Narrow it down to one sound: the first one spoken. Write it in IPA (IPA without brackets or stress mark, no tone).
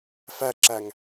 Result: f